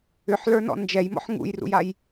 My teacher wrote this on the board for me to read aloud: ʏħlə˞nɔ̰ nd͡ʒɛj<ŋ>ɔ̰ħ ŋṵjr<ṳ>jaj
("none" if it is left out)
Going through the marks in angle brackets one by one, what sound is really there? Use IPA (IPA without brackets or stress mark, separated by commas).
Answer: m, ṵ